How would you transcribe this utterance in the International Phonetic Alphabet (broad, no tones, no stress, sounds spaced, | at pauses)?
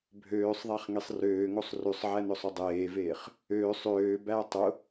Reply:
bʱ øː sˤ ðˤ æ χ ŋ e sˤ r øː ŋ o sˤ r ʉ sˤ ʕ æ n ʊ sˤ ø dˤ eː v eː χ | øː sˤ øː b æ tˤ ʊ